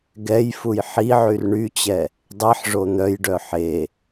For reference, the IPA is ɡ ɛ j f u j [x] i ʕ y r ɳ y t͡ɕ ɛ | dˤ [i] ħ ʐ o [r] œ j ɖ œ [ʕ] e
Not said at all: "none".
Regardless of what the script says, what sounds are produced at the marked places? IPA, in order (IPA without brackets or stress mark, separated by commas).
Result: ħ, i, n̪, ħ